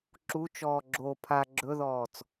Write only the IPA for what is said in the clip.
ǁ u t͡ʃ ɔː ɡ͡ǁ o pʰ a ɡ͡ǁ ɵ ð ɔː t͡s

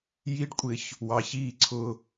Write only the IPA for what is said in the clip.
j i˦ ɖ kʷʼ ɪː˦ ç | w ɑ˨ ç iː˦˨ ǀʰ ʊː˦

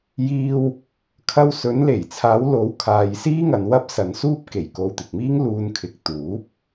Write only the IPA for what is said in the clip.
j iː˧ w | kʰ ɐ˧ w s ɵ˨˧ n l e˨˩ j t͡sʰ aː˨˧ w l o˨˧ w kʰ aː˨ j s iː˥ ŋ ɐ˨ n w ɐ˥ p̚ s ɐ˨ n s uː˥ p̚ k e˨˩ j k o˧ w t̪ ɪ˨ k̚ m iː˥ ŋ l uː˧ n kʰ ɪ˨ k̚ t̪ uː˨˥ p̚

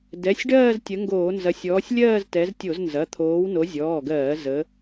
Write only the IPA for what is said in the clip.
d ɛ˩˧˩ sʲ ɖ ɜː˥˧ z tʲ ə˨˦ ŋ ɡ oː˧˩˧ n z ɐ˨˦ sʲ ɔː˨˦ sʲ lʲ ɜː˥˧ z t ɛ˨˦ z tʲ o˧˩˧ z n z ɐ˩˧˩ t̪ʰ oː˨˦ w n o˨˦ zʲ ɔː˩˧˩ ɡ ɜː˧˩˧ z ə˨˦

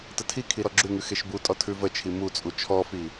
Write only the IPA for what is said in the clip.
t ə tʰ i kʰ i ɾ ɔ ɡ͡ǁ ʉ ŋ ʉ x e ʃ b u tʼ ɔ tʰ ʉ v ə t͡ʃʰ i m u t͡sʼ u t͡ʃʰ ɔ f i

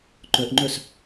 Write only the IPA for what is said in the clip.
ǃ œ ʔ ŋ͡ǃ œ s

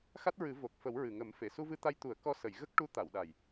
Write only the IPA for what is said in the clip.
x a˦˥ t̚ ɹ ɨ˨˩˦ v o˨˩ k̚ f ə˨˩˦ w ɹ ɨ˨˩ ŋ ə˨˩˦ m f e˨˩˨ s u˧ v ɨ˧ t̪ a˧ j t̪ u˨˩˦ ə̯ k ɔ˧ s ə˨˩˨ j ɣ ə˦˥ k̚ ʈ u˧˥ t̪ a˨˩˨ w ɗ a˨˩ j

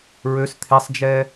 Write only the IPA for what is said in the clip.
ɹ ø s t̪ʰ e sˤ d͡ʒ ɛ

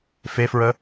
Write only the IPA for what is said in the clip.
f e f ɹ ə

